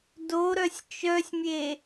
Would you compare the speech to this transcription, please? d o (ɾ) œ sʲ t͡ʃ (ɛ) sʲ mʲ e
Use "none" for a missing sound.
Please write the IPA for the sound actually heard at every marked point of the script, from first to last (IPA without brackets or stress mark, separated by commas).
ɾ, œ